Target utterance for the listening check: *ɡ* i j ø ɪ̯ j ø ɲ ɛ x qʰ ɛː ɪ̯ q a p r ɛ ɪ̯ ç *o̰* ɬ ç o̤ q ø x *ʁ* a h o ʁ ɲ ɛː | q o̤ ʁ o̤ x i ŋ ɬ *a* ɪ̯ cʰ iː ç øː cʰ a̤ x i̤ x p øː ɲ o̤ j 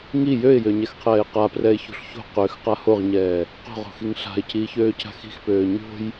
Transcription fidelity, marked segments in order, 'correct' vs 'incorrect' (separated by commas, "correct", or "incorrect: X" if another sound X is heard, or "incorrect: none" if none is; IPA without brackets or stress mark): incorrect: ŋ, incorrect: o̤, incorrect: q, incorrect: a̤